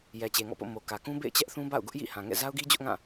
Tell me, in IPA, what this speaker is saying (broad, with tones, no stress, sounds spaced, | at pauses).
j ɛ˨ t͡ɕ e˨ ŋ ɔ̰˦˨ p o̰˦˨ m o˨ k ä˨ k ũ˦ b ḛ˦˨ ɪ̯ t͡ɕ ɛ˦ ʔ θ ũ˦ b a̰˦˨ ʊ̯ ɡ ʊ˦ ʔ j ḭ˦˨ h ã˨ ŋ ɛ̰˦˨ z a˦ ʊ̯ ɡ i˦ d͡ʑ ʊ˦ ʔ ŋ ã˦˨